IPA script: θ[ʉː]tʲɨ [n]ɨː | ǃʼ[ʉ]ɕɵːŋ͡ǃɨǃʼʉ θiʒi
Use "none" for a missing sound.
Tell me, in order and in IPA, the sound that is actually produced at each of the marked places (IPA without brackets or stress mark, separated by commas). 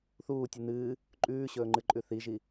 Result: uː, n, ʉː